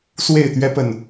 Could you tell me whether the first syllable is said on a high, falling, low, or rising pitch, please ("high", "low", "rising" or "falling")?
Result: falling